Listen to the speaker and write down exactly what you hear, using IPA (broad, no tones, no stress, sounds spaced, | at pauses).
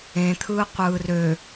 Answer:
ẽ t̪ʰ ɯː qʷ ɯː r ø